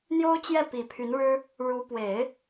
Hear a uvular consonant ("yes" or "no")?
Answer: no